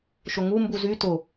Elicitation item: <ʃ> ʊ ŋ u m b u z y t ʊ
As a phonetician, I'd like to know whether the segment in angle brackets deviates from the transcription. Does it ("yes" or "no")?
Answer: no